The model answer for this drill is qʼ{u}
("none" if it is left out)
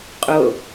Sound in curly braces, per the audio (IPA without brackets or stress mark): o